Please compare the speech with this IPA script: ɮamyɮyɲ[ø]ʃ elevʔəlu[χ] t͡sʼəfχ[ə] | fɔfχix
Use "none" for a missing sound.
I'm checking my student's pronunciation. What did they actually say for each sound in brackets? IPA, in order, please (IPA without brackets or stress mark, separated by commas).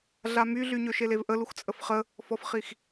ø, x, ə